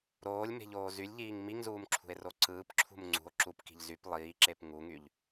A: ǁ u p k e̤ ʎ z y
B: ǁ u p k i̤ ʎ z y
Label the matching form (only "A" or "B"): B